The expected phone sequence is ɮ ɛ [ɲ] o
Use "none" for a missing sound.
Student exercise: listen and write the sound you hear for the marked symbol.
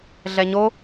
ɲ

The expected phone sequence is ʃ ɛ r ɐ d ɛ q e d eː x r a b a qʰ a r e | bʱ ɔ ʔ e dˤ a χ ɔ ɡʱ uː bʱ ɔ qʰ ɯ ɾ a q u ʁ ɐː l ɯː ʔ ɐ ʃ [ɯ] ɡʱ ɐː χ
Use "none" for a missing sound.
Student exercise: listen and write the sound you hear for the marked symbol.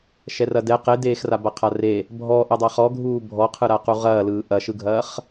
ɯ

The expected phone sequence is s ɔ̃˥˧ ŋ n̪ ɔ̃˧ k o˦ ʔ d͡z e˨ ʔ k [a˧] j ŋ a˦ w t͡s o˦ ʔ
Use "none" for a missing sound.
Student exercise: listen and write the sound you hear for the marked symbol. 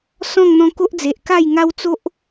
a˥˧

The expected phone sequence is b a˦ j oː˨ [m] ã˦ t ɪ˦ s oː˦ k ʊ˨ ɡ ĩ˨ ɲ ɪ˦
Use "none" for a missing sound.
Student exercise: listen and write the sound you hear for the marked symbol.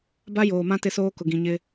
m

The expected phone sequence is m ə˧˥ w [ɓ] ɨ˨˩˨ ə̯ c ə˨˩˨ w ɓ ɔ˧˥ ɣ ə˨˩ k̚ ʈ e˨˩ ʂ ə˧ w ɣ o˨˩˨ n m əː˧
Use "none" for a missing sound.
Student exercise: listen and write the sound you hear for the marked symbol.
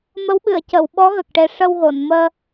ɓ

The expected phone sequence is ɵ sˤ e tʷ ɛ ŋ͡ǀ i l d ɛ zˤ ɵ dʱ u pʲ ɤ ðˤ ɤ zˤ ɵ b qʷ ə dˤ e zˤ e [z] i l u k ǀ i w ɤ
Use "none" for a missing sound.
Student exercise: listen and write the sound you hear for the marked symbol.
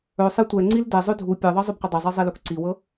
zˤ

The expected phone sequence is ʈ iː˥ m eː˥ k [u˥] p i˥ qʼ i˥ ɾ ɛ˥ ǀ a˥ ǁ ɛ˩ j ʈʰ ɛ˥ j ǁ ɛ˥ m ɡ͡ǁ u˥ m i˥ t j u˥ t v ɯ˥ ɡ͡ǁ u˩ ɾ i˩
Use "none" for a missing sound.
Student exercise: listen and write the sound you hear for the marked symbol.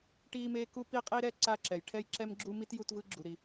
u˥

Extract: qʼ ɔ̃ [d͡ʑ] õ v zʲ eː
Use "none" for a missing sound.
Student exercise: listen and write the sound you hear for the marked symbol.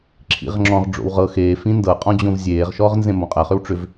d͡ʑ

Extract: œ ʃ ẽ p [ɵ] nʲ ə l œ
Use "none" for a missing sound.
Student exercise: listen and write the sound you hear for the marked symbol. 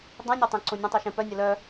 œ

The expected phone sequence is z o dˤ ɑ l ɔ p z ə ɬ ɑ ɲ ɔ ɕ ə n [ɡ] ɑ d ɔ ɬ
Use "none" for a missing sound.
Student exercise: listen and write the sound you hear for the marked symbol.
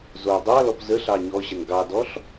ɡ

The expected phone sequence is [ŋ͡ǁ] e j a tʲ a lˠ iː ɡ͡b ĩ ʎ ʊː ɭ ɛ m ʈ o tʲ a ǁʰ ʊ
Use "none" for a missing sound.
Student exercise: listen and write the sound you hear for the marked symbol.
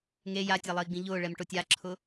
ŋ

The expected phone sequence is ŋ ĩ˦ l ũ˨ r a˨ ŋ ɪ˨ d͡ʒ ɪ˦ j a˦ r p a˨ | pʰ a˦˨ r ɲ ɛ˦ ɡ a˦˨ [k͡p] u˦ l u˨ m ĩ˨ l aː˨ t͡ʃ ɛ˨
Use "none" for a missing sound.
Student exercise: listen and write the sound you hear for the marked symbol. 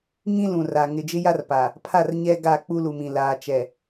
k͡p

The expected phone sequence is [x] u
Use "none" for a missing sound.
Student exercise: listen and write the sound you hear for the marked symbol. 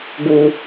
ɡ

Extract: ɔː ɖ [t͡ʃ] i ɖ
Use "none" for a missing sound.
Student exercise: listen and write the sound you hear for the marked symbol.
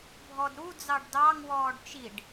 t͡ʃ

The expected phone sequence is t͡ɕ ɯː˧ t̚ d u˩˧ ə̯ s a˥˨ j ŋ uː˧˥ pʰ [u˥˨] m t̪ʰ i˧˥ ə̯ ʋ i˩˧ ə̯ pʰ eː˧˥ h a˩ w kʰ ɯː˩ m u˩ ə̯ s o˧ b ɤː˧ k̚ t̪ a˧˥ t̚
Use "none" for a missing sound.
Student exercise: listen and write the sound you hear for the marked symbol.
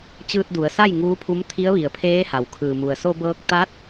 u˧˥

